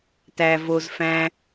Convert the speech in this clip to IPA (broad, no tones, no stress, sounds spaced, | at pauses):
t æ v o z f æ̃